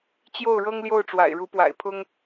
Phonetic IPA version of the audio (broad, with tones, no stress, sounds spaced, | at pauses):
t͡ɕ j o˥˩ ʊ̯ ɻ ɤ˥ ŋ l j o˥˩ ʊ̯ ʈ͡ʂ w a̰˨˩ ɪ̯ ɻ u˧˥ p w a̰˨˩ ɪ̯ pʰ ʊ˥ ŋ